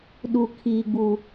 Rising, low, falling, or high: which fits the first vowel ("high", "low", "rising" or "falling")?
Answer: low